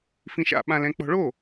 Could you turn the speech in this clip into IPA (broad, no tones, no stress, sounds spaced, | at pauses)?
f ĩ ʃ a̰ ɓ ã l ɛ̃ k͡p ɔ̤ ɭ o